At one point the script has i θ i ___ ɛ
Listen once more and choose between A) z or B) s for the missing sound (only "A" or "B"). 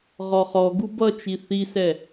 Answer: B